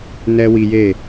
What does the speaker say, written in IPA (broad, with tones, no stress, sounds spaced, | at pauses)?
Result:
n ɛ˦ w i˧ j e˦˨